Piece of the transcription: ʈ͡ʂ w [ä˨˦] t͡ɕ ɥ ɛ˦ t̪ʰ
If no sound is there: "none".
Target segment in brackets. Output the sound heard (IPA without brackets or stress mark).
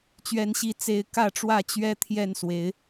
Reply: ä˥˨